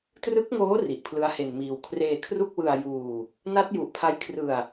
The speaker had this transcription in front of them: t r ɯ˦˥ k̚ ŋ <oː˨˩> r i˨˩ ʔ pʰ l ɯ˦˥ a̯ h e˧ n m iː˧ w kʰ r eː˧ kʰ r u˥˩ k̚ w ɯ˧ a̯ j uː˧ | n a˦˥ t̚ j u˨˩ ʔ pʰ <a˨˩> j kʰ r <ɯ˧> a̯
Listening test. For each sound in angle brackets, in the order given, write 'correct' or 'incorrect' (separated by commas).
incorrect, incorrect, correct